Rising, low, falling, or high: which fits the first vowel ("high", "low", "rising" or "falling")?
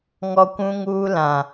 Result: high